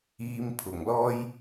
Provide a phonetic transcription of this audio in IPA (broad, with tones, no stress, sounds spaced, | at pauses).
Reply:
iː˧ m pʰ ʊ˨˩ ŋ l ɔː˥ j